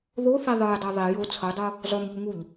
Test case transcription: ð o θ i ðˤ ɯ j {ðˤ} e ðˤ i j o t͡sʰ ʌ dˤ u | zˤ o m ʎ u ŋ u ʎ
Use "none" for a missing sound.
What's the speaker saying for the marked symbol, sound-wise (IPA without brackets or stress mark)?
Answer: dˤ